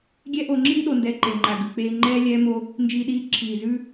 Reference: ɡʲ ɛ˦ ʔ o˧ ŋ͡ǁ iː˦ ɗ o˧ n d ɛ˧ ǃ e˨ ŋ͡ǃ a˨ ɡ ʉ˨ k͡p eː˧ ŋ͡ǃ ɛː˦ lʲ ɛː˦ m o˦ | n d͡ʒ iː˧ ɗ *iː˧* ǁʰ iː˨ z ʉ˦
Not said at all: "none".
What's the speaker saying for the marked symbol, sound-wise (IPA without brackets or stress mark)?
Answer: iː˧